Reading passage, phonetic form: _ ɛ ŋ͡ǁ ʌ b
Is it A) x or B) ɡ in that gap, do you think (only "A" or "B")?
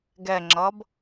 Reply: B